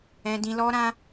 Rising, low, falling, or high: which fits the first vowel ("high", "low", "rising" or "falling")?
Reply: high